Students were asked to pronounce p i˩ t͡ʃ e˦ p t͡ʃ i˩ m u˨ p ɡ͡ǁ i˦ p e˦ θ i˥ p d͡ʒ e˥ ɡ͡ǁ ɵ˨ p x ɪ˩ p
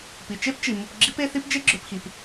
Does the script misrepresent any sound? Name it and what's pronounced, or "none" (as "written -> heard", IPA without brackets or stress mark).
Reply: ɪ˩ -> i˩